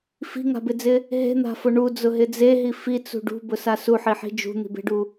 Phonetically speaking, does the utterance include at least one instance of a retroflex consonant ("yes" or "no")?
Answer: yes